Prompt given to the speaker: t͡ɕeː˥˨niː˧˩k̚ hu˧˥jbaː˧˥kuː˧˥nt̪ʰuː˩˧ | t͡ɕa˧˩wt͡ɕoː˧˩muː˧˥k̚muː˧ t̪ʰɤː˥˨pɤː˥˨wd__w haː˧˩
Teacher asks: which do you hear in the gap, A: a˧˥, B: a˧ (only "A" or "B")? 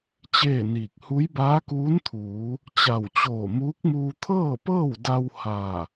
B